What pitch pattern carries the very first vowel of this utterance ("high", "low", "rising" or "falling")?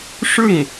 falling